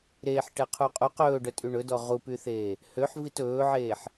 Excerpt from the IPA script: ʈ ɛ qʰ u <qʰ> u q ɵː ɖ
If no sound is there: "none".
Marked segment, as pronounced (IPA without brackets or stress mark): qʼ